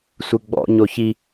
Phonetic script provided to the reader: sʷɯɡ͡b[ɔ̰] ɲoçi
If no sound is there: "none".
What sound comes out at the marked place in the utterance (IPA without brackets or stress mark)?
ɔ̰